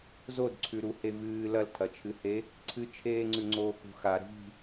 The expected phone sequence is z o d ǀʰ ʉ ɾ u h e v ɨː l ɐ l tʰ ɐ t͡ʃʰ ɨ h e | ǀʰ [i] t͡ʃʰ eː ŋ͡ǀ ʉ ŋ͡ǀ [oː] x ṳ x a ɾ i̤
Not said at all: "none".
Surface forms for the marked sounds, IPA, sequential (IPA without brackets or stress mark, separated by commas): ɨ, oː